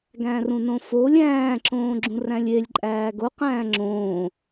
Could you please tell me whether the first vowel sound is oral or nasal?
nasal